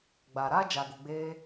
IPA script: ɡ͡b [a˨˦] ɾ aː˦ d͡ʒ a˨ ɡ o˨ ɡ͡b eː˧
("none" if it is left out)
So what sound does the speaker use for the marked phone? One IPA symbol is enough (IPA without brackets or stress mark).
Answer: a˨